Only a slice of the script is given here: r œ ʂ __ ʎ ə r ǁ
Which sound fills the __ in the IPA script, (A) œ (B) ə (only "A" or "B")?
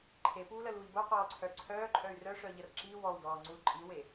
A